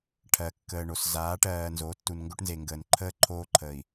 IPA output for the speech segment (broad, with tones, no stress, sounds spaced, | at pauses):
ʈʰ ɜ˨ kː əː˨ ɳ o˨ s z aː˨˦ ʈ ɜː˨ n z o˨˦ tː u˨ n ŋ ɡ o˦ ʈ n z e˨ ŋ ɡ əː˨ n ǃʰ əː˦ ǃʰ oː˦ ǃʰ əː˨ i̯